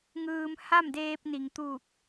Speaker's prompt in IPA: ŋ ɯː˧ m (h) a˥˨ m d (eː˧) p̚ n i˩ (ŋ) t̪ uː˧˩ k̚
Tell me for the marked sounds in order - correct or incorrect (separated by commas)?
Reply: correct, correct, correct